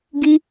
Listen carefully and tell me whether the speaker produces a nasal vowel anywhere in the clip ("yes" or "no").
no